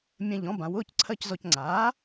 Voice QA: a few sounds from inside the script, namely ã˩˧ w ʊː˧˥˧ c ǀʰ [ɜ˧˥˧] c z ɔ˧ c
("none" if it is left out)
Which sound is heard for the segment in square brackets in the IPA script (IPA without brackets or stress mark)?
ɜ˧˥˧